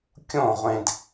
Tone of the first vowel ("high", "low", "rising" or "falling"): falling